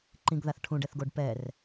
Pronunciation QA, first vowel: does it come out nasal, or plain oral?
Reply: nasal